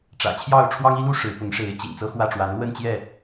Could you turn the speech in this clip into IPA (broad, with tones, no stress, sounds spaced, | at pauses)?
ʈ͡ʂ ä̰˨˩ t͡ɕʰ j ɑ˥˨ ʊ̯ ʈ͡ʂʰ w ɑ˦ ŋ i˦ l u˦ ʂ ɻ̩˨˦ p ʊ˨˦ ŋ ʂ e˨˦ ɪ̯ t͡ɕ ḭ˨˩ ŋ t͡s ɤ˦ x w ä˥˨ ʈ͡ʂ w a˨˦ n l w ə˥˨ n t͡ɕ j ɛ˥˨